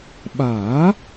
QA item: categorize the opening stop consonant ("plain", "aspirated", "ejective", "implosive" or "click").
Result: implosive